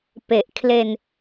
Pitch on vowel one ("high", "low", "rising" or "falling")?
low